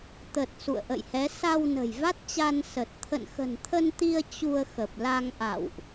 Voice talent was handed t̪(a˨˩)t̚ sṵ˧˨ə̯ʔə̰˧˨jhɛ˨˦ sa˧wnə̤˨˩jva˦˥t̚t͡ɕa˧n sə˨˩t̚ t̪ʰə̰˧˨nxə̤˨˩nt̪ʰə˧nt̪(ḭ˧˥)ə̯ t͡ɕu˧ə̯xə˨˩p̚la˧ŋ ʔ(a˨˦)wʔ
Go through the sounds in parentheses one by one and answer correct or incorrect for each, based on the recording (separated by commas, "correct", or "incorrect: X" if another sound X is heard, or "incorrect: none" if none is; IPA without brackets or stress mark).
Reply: incorrect: ə˨˩, incorrect: i˧, incorrect: a̰˧˨